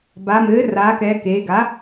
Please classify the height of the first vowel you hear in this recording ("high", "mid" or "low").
low